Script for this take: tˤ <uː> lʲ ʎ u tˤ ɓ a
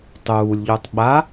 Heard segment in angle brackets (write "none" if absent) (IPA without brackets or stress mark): uː